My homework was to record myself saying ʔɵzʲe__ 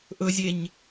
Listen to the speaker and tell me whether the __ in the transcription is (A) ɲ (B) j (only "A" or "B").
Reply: A